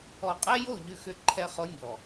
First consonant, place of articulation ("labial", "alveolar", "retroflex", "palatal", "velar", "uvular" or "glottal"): uvular